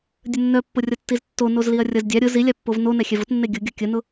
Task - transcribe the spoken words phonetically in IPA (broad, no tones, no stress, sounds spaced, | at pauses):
dʲ ə nː œ pː ʊ rʲ ʌ tː i z tː o n o z l i ɐ̯ rʲ ʌ z dʲ a ɾʲ ʊ z i lʲ a pː o v n o n ɛ xʲ ɛ v ʊ t nː e ɡʲ ʊ ɡʲ ʌ kʲ ə n ʊ